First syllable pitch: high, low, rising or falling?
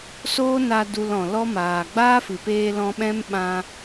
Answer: high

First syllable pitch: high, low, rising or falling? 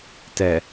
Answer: low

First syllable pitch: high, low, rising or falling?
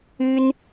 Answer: high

